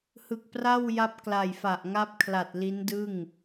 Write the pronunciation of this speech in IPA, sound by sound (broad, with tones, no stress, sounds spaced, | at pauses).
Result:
h ɯ˨˩ k̚ p r a˥˩ w j a˦˥ p̚ k l a˨˩ j f a˨˩ ʔ ŋ a˦˥ p̚ kʰ l a˨˩ t̚ l i˦˥ n d ɯ˥˩ ŋ